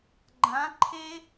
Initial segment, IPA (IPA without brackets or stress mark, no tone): ɡ͡ǃ